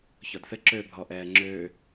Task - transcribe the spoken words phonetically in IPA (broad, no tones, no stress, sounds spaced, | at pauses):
ç ɔ d θ ɘ ǁ ø bʱ ɔ ʔ ɛː ŋ͡ǁ øː